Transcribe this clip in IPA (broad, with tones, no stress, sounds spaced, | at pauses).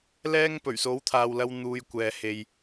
l ɛː˥ ŋ p ɵ˨˩ ɥ s o˨˥ w t̪ʰ aː˨ w l ɐ˧ w n̪ uː˧ j kʷ ɛː˨ h e˨ j